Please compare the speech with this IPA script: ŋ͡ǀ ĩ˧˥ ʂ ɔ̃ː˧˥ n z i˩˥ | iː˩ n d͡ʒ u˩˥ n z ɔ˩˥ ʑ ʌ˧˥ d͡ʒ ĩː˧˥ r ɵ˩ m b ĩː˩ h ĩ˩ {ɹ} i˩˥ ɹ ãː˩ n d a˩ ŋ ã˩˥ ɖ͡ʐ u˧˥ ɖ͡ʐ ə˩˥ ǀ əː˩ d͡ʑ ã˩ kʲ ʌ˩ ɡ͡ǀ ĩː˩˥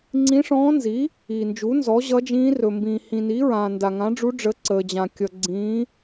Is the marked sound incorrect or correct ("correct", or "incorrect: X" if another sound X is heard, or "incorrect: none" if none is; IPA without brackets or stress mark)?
incorrect: n